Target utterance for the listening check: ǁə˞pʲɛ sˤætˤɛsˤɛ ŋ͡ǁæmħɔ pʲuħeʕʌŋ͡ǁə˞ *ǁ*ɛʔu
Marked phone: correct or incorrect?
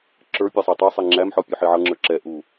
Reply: correct